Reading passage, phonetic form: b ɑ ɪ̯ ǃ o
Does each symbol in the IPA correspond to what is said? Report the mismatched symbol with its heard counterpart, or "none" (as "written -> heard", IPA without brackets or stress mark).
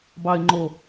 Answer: ǃ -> ŋ͡ǃ